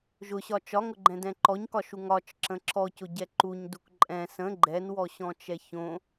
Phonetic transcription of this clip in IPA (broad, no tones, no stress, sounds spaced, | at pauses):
ʒ ʊ ɕ ɒ t͡ʃ ɒ ŋ ʊ ɡ͡ǃ ɛ̃ d ɛ̃ ǃ ɔ ɲ k ɒ ʃ u ŋ ɒ t͡ʃ ǁ ə̃ ǁ ɔ c ʊ ɟ ɛ ǃ u ɲ d u k ǃʼ ɛ̃ s ə̃ ɡ͡ǃ ɛ n w ɔ ɕ ɔ̃ t͡ʃ ɛ ç õ